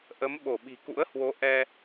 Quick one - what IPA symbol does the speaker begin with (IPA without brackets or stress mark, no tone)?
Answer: ʔ